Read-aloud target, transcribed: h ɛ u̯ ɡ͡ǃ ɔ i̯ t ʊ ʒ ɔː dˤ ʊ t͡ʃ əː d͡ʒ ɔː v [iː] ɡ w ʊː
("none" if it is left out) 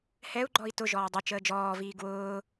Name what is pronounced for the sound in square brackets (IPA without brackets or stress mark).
iː